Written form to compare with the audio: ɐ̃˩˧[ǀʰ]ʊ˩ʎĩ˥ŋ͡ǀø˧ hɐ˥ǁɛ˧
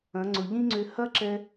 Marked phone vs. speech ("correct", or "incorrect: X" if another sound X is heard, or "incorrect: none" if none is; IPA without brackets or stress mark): incorrect: ŋ͡ǀ